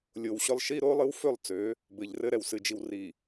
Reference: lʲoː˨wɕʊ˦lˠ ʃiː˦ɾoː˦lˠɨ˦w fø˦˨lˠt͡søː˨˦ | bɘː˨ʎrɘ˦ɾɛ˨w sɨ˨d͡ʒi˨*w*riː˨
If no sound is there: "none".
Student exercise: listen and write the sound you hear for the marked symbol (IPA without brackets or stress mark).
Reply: w